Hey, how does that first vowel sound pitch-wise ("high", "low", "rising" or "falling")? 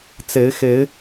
rising